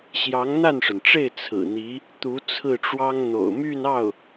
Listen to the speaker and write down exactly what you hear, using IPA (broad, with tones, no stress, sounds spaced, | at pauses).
ɕ j ɑ˧˥ ŋ n̪ a˥˩ n ʂ ə˩ n ʈ͡ʂ e˥˩ ɪ̯ t͡sʰ ɹ̩˨˩ n̪ i˧˥ | t̪ u˧˥ t͡sʰ ɹ̩˥˩ ʈ͡ʂ w ɑ˥ ŋ n̪ o̰˨˩ ʊ̯ m y˥˧ n ɑ˥˩ ʊ̯